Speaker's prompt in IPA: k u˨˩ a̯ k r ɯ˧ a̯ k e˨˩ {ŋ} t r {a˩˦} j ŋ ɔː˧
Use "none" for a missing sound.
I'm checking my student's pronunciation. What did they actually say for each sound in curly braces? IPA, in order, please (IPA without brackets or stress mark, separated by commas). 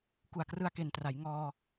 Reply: n, a˩˦